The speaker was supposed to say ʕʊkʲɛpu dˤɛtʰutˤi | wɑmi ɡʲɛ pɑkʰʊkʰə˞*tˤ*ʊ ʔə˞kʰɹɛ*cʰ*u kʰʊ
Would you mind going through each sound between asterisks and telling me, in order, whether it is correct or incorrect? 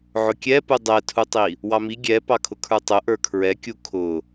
correct, incorrect: kʲ

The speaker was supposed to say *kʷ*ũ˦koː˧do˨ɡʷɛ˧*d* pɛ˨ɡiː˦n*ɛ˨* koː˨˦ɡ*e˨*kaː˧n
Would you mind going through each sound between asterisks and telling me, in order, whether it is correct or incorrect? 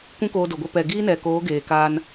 correct, incorrect: none, correct, incorrect: eː˨

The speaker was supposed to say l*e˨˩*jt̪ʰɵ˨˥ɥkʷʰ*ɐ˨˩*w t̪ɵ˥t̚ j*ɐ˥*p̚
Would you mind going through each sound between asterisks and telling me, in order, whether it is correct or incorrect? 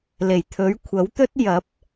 correct, incorrect: ɐ˨˥, incorrect: ɐ˨˥

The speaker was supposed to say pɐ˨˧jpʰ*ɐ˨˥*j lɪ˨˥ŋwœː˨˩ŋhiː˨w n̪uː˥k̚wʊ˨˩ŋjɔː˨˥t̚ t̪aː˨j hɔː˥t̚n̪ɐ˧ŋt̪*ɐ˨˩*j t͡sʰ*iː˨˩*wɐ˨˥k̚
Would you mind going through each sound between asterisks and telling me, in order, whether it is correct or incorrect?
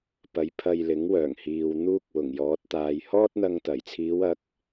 incorrect: ɐ˧, correct, incorrect: iː˨˧

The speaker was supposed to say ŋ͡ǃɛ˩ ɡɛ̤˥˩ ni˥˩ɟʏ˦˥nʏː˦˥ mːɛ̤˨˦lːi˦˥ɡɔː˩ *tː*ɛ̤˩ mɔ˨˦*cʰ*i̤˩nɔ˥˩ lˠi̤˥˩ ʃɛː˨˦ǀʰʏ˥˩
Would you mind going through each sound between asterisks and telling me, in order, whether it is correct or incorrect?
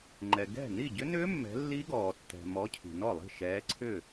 correct, correct

